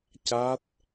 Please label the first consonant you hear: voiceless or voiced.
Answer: voiceless